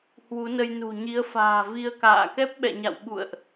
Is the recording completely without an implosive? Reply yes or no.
no